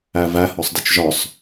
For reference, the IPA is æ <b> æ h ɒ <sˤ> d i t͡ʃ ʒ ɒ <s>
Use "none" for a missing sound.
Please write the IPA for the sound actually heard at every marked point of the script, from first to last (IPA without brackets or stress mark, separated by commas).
v, sˤ, sˤ